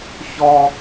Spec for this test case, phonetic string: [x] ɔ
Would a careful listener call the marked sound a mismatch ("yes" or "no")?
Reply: yes